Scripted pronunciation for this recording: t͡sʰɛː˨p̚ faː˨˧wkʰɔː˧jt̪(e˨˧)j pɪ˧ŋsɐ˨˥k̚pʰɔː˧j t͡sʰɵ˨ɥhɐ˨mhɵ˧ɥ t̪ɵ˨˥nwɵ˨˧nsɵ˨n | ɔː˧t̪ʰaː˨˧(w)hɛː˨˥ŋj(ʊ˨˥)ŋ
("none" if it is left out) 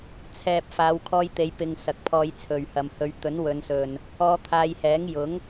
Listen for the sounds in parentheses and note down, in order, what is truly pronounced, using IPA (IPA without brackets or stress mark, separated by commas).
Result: e˨˧, j, ʊ˨˥